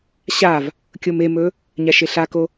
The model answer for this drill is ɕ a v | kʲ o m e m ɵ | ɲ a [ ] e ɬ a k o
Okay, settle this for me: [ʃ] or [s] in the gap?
ʃ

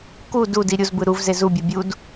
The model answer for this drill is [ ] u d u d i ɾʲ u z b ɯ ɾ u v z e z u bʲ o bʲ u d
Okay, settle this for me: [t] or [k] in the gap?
k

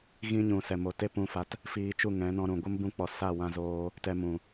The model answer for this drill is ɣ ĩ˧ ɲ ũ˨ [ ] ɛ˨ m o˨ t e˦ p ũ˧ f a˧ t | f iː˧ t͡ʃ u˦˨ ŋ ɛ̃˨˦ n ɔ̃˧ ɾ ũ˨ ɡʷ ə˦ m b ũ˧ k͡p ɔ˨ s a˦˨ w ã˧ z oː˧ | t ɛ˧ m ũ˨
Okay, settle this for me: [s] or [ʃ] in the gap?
s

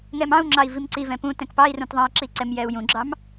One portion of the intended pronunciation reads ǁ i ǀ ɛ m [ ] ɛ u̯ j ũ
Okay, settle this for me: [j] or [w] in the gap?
j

